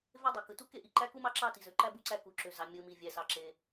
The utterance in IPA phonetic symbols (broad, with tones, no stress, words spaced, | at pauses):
ve˥dˤe˩ kɯ˩tu˥ke˥ ʔi˩ǃæ˥ku˥mɑ˥ ǁɑ˥ti˩zø˩ǃæ˥ bu˥ǀæ˥ku˩ǁø˩ zɑ˩ mʲɯ˩ mi˩ vʲæ˩sɑ˩ǁe˩